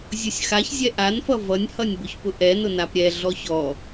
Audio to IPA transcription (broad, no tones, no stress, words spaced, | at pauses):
zʲʊsʲxaç zʲɛʔanfʌ vʌnʲhʌnʲbʊç pʊʔɛ nʊnapɾʲɛ ɮɔçɔ